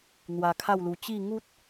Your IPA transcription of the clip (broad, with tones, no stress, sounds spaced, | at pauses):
n̪ w a˧ kʰ a˥˧ w l u˧ t͡ɕ i˥˧ ŋ u˦ t̚